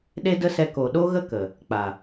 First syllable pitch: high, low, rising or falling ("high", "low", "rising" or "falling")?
high